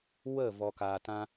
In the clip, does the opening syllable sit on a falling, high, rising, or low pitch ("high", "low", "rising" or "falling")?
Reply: falling